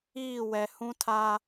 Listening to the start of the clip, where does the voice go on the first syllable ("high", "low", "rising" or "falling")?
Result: falling